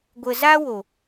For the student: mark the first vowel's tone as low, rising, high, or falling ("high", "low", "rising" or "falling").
low